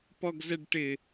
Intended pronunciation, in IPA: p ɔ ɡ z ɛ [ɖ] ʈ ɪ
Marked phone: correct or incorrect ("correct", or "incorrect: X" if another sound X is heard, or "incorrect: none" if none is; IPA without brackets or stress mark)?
correct